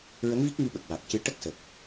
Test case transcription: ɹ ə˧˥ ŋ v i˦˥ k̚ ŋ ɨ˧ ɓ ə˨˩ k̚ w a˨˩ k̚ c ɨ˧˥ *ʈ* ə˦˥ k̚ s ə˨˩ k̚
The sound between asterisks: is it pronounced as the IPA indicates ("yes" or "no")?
yes